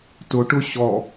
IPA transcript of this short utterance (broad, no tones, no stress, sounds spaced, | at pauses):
t ʊ ʈ ʊ ɕ ɔ